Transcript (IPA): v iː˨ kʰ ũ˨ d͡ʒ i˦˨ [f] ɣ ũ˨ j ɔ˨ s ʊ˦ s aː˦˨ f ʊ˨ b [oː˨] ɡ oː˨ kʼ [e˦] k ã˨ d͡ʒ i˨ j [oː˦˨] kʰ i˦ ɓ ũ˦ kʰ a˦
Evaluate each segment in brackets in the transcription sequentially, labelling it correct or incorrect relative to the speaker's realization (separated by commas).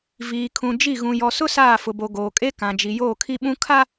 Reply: incorrect, incorrect, correct, correct